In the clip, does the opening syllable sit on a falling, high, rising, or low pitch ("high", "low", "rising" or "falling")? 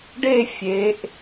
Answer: falling